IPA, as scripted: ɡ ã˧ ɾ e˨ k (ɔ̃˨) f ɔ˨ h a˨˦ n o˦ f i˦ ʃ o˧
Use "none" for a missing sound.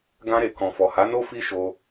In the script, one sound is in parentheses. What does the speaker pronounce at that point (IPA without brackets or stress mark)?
ɔ̃˨